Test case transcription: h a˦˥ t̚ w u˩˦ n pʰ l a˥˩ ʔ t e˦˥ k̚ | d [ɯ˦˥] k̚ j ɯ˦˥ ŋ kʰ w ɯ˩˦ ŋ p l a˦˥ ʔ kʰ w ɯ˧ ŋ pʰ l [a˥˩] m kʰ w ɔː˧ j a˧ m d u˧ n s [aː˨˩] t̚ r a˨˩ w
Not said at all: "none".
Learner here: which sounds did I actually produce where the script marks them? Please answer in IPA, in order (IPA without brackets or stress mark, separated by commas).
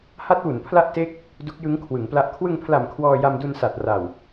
u˦˥, a˨˩, a˨˩